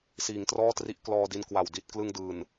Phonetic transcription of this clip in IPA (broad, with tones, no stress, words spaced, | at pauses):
siː˩˦ŋtrɔː˥˩tri˦˥ʔ klɔː˧di˧n kwa˨˩w di˨˩t̚ klɯ˧ŋ dɯː˨˩n